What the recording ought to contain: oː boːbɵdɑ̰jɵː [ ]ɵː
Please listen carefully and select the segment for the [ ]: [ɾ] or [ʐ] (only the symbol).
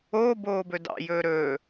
ɾ